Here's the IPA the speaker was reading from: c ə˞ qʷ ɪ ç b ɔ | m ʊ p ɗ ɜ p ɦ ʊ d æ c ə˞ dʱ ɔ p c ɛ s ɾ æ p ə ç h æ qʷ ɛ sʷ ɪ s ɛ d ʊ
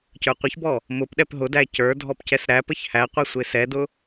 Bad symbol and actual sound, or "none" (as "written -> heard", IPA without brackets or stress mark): ɜ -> ɛ